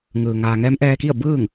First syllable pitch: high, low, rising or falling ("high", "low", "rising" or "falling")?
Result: low